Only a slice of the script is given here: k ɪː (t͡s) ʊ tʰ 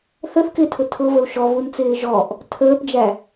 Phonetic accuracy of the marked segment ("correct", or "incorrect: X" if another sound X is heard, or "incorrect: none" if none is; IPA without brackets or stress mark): incorrect: tʰ